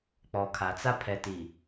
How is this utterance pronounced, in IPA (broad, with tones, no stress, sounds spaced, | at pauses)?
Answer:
k͡p ɔ˨ kʰ a˨ t͡s a˦ pʰ ɛ˨ t i˨